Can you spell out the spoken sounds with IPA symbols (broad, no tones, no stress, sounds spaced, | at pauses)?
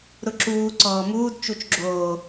ɾ ʊ ǁ uː ǀ ɔː m uː d t͡ʃ u t͡ʃ ɡ͡ǁ oː